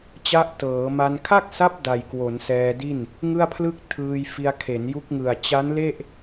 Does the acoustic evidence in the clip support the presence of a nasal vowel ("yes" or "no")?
no